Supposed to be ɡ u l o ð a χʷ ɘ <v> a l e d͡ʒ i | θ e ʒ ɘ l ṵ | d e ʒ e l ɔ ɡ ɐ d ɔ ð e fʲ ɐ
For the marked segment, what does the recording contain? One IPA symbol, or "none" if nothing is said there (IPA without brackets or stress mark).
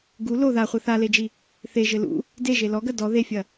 θ